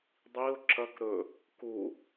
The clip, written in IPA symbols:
dˤiʊ̯ ǁɐk ɾɵ | ku

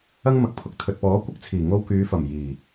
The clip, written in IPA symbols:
ɐ˥ŋmɐ˨k̚pʰʊ˨˥k̚ t̪ʰɵ˨t̚pɔː˨˥ kʷɪ˥k̚t͡sʰiː˨˩ ŋo˧wkyː˨˧fɐ˨˩m jiː˨˩

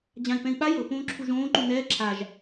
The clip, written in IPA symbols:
d͡ʑãi̯pɛ̃i̯ɓa jɤ põːǁʰuʒõː ǃunɛː ǁʰaʒ

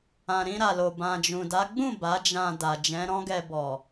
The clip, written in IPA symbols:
ã˨ɾĩ˧ɾa˨lo˨ bã˨d͡ʒũ˨da˨˦ ɡ͡bũ˦˨ ba˨˦d͡ʒã˧ da˨d͡ʒɛ̃˨˦ɾɔ̃˦ɡɛ˧ bɔ˨

